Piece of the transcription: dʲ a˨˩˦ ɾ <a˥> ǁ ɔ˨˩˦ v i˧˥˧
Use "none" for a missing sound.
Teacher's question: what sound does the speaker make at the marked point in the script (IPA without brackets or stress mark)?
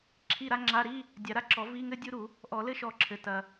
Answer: a˥